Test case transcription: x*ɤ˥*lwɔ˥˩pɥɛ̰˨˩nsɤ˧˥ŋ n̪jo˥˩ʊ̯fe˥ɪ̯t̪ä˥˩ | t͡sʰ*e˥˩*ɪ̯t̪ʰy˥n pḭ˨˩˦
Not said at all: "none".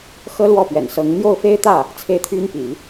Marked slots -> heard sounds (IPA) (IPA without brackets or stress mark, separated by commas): ɤ˥, e˥˩